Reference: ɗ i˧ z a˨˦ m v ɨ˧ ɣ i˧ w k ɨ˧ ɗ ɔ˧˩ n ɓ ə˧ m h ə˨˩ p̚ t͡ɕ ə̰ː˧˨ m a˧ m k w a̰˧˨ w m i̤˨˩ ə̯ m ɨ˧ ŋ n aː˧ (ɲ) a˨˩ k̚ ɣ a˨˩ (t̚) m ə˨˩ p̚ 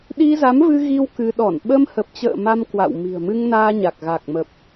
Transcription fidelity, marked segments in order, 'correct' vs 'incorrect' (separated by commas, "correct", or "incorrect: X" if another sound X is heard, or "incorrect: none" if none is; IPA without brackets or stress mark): correct, incorrect: k̚